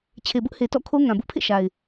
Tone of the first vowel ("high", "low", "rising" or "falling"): low